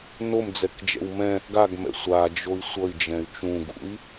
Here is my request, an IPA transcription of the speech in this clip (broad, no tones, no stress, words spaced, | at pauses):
nom d͡zɛkd͡ʒɛ̰wmɛ̃ | ɡaɡmɛ̰ sʷad͡ʒoi̯ sʷʌi̯ d͡ʒɛ̃y̯t͡ʃũɡṵi̯